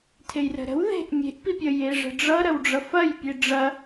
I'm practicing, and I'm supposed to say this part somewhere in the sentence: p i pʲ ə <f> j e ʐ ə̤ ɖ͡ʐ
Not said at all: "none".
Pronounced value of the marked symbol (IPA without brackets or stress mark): none